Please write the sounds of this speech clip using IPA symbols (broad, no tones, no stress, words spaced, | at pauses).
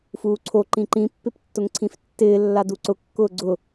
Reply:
fuːǀʰo ǃĩǃĩ pːɪptːʊŋǀʰĩftːɪː lːaduǀʊ kːʊːɡ͡ǀʊ